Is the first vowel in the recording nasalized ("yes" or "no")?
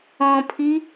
yes